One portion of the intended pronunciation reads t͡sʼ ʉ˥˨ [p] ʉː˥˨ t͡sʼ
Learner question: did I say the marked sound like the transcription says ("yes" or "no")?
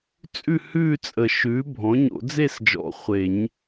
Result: no